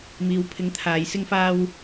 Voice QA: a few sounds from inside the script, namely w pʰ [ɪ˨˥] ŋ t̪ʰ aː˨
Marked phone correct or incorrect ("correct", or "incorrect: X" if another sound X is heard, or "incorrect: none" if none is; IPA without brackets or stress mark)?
correct